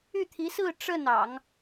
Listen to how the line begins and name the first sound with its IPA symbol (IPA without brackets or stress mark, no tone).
y